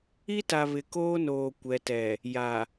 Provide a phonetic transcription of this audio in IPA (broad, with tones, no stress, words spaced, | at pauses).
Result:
i˦ta˨ βɪ˨koː˦noː˨ kʷɛ˨tɛ˨ | ja˨